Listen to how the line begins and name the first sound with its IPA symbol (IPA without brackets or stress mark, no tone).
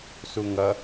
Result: s